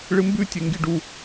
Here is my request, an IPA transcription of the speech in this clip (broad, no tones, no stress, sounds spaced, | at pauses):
ɭ ɨ m b ʉ tʲ e ŋ ɡ i ɖ u